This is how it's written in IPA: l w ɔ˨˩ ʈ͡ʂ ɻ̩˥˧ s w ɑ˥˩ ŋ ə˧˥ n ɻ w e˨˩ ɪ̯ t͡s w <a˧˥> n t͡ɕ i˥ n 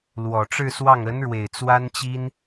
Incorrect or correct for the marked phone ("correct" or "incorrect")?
incorrect